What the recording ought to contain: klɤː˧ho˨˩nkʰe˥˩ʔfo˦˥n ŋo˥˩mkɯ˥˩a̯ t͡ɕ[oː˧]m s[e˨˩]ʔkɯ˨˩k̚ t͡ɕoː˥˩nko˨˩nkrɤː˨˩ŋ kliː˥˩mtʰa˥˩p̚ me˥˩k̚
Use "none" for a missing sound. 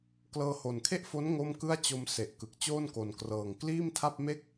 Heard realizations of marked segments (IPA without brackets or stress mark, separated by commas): o˧, e˨˩